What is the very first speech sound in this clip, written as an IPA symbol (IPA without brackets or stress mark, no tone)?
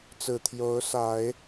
t͡s